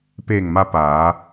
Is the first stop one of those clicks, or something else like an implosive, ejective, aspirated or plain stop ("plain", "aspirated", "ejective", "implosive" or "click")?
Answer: plain